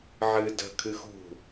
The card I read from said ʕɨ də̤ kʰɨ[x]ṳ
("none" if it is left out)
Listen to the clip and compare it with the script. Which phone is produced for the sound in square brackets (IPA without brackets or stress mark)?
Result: x